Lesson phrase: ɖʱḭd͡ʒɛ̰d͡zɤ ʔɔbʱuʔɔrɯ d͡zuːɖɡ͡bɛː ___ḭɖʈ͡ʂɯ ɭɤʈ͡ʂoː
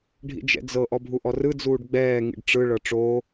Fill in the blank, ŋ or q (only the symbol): ŋ